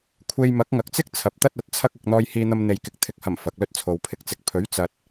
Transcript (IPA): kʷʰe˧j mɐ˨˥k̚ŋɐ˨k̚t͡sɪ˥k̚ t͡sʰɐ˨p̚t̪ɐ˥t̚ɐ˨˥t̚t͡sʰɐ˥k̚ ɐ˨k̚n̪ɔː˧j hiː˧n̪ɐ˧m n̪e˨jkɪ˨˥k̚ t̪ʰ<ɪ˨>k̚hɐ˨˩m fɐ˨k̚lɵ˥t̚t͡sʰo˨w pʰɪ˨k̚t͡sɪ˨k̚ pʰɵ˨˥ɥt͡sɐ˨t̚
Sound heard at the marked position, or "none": ɪ˨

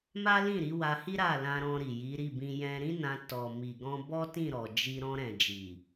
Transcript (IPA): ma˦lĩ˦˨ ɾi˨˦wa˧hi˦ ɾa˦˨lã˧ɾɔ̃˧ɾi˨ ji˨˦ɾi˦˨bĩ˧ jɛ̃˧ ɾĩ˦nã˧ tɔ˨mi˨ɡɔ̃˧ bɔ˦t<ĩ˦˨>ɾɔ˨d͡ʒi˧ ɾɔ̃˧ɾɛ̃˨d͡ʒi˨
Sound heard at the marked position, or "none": ĩ˦˨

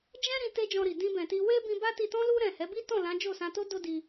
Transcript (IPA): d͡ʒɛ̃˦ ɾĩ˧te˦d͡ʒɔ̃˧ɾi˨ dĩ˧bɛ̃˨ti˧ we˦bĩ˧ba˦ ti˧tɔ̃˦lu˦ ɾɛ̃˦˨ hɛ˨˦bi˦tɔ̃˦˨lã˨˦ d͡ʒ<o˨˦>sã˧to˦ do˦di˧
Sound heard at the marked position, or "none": o˦˨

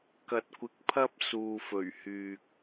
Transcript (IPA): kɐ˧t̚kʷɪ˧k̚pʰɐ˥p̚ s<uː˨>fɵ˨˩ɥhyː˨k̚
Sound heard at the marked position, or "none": uː˨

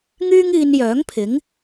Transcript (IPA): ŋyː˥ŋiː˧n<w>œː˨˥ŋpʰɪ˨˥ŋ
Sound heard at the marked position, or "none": j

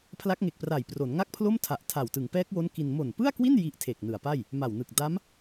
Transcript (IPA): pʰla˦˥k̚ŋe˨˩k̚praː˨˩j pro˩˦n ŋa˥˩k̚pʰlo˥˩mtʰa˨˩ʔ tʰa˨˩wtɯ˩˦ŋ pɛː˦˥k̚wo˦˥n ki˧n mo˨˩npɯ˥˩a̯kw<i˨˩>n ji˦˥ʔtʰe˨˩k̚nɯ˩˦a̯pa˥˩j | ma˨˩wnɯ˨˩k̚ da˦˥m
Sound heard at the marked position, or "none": i˥˩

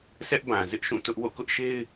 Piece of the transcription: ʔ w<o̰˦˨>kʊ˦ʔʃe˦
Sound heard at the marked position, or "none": o̰˦˨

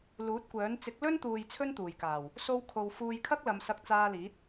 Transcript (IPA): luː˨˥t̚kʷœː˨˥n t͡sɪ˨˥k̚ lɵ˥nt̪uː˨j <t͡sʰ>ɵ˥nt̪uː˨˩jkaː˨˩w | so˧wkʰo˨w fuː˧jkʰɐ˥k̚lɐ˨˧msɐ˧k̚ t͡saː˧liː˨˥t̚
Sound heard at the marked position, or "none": t͡sʰ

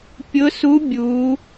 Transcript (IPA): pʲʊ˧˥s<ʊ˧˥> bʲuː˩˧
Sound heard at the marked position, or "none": u˧˥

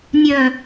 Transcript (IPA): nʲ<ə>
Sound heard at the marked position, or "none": œ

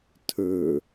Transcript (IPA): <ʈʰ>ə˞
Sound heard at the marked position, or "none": tʰ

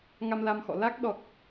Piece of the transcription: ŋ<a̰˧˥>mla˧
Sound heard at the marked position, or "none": a˧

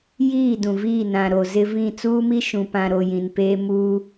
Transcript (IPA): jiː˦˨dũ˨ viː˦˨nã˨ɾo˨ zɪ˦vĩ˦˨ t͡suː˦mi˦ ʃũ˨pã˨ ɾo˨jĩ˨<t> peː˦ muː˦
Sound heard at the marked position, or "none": n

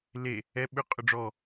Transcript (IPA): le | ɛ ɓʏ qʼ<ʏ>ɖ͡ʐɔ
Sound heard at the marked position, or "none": ʏ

